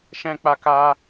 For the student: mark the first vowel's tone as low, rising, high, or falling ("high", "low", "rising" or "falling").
high